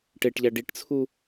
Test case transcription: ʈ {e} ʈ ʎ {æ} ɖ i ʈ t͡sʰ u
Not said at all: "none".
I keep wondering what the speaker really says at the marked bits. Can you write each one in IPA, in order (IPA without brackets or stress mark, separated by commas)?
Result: e, æ